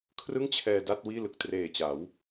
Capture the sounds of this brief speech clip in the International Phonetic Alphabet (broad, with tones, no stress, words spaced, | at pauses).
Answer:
kʰrɯ˥˩ŋt͡ɕʰɛː˧ da˥˩t̚ wiː˥˩lɯ˨˩k̚ treː˨˩t͡ɕa˩˦w